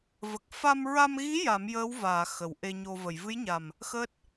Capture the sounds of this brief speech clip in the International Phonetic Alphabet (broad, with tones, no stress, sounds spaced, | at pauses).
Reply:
v ə˨˩ k̚ f a˧ m ɹ a˧ m ɣ i˧˥ j a˨˩˦ m j əː˧˥ w v aː˨˩˨ x ə˨˩˨ w ʔ e˧ ɲ o˧ v ə˨˩˨ j v ɨ˧˥ j ɲ a˨˩ m | x əː˦˥ t̚